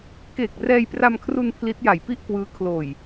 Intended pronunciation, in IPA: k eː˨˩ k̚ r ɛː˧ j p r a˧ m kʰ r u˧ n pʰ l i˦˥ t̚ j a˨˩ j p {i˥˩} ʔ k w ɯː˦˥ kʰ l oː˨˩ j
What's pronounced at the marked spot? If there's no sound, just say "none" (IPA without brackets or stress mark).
i˥˩